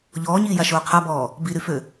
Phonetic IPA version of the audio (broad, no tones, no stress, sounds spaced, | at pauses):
ʎ ɔː ɲ iː j a ʃ oː qʰ a b ɔː | b i ɾ y f ø